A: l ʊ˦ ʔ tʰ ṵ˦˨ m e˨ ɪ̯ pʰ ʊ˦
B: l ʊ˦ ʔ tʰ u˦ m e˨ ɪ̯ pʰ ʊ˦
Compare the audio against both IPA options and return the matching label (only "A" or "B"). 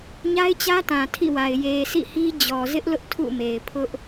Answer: A